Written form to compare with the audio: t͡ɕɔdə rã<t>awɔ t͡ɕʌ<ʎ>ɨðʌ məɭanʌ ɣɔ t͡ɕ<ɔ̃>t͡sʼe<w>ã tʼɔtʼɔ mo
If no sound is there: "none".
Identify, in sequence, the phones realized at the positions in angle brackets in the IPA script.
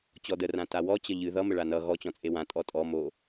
t, ʎ, ɔ̃, w

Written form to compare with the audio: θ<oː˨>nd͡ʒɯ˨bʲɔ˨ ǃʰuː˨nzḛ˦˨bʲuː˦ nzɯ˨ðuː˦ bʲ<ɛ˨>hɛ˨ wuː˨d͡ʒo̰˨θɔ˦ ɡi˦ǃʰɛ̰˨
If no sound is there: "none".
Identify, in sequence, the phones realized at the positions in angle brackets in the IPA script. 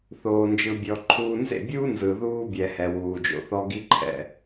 oː˨, ɛ˨

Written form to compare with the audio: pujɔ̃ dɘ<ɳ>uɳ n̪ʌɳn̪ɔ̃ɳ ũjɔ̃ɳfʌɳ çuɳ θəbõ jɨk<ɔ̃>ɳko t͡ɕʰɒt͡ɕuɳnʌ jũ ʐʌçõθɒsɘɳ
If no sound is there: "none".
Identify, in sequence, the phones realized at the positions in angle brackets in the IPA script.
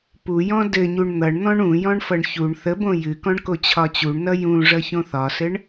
ɲ, ɔ̃

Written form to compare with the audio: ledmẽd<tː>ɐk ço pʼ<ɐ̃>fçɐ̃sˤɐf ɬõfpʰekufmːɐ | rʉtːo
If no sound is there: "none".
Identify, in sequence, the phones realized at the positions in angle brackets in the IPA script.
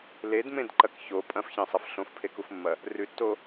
ǃ, ɐ̃

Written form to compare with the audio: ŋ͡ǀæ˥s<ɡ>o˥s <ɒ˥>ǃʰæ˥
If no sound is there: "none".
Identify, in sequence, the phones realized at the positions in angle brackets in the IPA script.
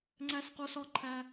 q, ɒ˥

